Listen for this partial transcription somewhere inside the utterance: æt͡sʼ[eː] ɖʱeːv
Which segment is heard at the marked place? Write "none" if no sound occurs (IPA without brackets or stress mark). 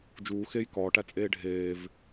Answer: eː